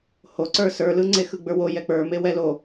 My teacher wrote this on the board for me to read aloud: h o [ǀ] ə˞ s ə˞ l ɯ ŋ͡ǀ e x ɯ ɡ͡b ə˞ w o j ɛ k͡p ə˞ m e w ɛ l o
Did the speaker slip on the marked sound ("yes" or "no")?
no